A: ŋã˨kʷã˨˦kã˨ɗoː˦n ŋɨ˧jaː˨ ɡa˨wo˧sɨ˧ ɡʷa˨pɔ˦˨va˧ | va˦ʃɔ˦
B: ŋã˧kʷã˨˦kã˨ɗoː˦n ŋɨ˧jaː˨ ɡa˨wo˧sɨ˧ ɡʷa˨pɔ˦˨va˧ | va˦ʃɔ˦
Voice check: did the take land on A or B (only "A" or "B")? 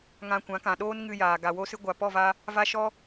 B